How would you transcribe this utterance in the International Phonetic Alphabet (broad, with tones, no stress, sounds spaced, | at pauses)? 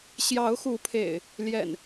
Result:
ɕ j ɑ˨˦ ʊ̯ x u˨˦ pʰ ḛ˨˩ ɪ̯ | l j ɛ̰˨˩ n